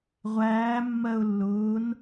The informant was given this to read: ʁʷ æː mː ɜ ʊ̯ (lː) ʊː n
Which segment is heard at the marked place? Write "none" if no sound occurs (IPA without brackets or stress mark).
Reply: lː